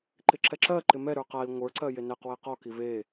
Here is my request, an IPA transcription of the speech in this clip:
ǃ ɪ ǁ ɛ ǁ ɜ ǃ ɪ m ɛ ɾ ə˞ q a i̯ ŋʷ ə˞ ǀ ɜ j e n ɛ q w ɛ q ɔ k i v e

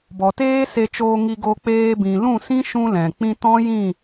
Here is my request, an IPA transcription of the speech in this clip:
b ɔ˨ t eː˦ s e˧ t͡ʃ oː˧ ŋ i˧ ɡ o˧ k͡p eː˧ b ĩ˨ l ũ˦˨ s ĩ˦ ʃ ũ˦ l ɛ̃˨ k͡p ĩ˧ t ɔ̃˦ j ĩ˦˨

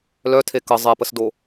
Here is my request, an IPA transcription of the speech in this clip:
l œ tʰ e k ə zˤ e p ə s d o

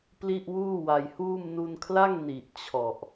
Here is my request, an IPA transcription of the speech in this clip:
p l i˥˩ ʔ w uː˥˩ w a˧ j h uː˥˩ m n u˧ n kʰ l a˥˩ ŋ n i˨˩ ʔ t͡ɕʰ ɔ˨˩ ʔ

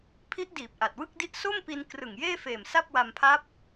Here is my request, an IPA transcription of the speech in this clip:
pʰ i˦˥ ʔ d iː˨˩ p̚ ʔ a˨˩ t̚ w ɯ˥˩ k̚ d i˦˥ ʔ s o˥˩ m p i˧ n k r ɯ˨˩ ŋ j eː˥˩ f eː˨˩ m s a˥˩ p̚ w a˧ m pʰ a˦˥ p̚

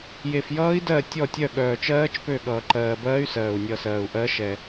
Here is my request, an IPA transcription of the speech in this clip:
j e˨ f j ʌː˦˥ i̯ d ɜ˦˨ tʲ ɔ˦˨ tʲ œ˦˨ ɠ œː˨ t͡ʃ ɜː˦˥ t͡ʃ p ø˦˨ ɠ ʌː˨ ǃ ɜː˨ b ɜː˦˥ y̯ s ɜː˨ u̯ nʲ ʌ˦˨ s ɜː˨ u̯ ʔ ɜ˦˥ ʃ ɛ˨

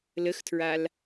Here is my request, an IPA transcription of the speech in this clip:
l ə x tʰ ɹ a l

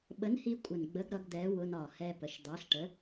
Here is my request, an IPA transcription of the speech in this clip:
ɓ ə˨˥ n h i˧ kʷʼ ə˨˩ n ɡ͡b ə˨˥ ɡ ɾ ʌ˨˥ ɡ d̪ ɛ˨˥ w ʊ˧ n ɒ˨˩ h ɛ˧ p ə˨˩ ʃ d̪ ɑ˨˥ ɬ ʈ ə˨˥

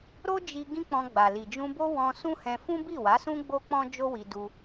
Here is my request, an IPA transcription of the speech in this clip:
ɾ o˦ d͡ʒ i˧ ɡ ĩ˦ k͡p ɔ̃˧ ɡ͡b a˨ l i˨ d͡ʒ ũ˧ b o˦ w ɔ̃˧ s ũ˦ h ɛ̃˧ f ũ˦ b i˦˨ w a˨˦ s ũ˦ ɡ͡b o˦ k͡p ɔ̃˦ d͡ʒ o˦ w i˧ d u˧

